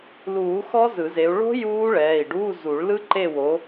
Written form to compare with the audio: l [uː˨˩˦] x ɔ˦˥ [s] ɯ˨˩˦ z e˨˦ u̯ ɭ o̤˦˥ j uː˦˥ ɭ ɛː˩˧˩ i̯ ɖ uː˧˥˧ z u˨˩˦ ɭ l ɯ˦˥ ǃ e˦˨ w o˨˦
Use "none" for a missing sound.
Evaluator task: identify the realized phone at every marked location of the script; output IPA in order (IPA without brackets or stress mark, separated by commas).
uː˨˩˦, z